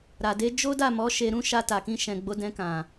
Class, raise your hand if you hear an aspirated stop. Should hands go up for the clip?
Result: no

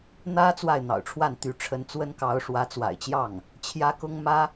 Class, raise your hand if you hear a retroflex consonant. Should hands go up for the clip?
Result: yes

